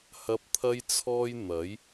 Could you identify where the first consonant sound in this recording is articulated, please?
glottal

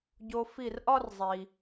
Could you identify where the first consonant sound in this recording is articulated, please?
palatal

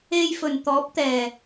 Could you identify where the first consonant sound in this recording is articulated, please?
palatal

